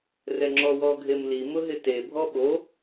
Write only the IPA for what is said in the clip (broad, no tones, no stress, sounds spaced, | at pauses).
r ɛ ŋ͡ǁ ɔ w ɔ ɡʱ e m l i m ʊ ɦ ɪ t e bʱ ɔ ɓ o